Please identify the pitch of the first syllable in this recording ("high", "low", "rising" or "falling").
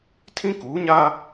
high